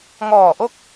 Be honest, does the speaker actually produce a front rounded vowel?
no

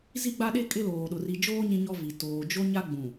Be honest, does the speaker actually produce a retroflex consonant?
no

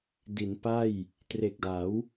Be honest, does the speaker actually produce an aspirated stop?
no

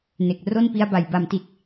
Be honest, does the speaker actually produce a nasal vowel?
no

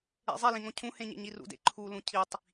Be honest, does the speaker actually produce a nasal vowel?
yes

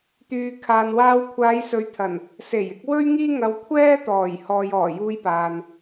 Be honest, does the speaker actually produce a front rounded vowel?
yes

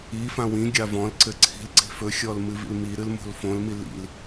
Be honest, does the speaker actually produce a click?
yes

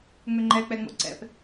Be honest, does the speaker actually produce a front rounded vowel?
yes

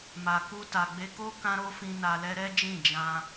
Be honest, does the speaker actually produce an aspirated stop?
no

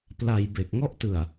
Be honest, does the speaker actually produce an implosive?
no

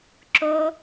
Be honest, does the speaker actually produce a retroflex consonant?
no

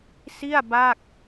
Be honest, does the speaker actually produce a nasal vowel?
no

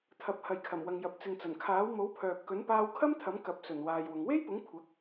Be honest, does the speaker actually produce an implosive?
no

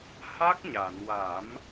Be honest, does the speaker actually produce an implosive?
no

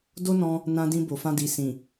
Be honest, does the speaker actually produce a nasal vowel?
yes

